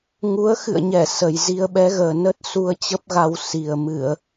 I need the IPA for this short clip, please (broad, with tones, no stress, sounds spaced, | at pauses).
ŋ u˨˦ ə̯ x ɨ̰˧˨ ə̯ ɲ ɛ˧˩ s ə˨˩ j z i˧ ə̯ ɓ ɛ˨˦ ɣ əː˨˩ n ə˦˥ t̚ s u˧ ə̯ t͡ɕ ə˦˥ p̚ ɣ a˧ w s i˨˩ ə̯ m ɨ˧˩˨ ə̯